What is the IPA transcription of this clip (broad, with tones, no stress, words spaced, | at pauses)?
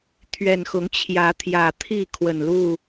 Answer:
t̪ʰɥɛ˨˩n xʊ˨˦ŋt͡ɕʰjä˨˦t̪ʰjä˨˩t̪ʰi˥˨ kʰwə˨˩nlu˥˨